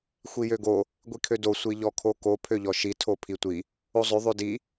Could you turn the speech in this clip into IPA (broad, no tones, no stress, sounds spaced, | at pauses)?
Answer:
xʷ i j ø ɡ o | ɡʷ i kʰ ø d o sʷ i ʎ ɔ kʰ o k o pʰ ø ʎ ɔ ʃ i tʰ o pʰ i tʷ i | o zˤ ø ðˤ ø d i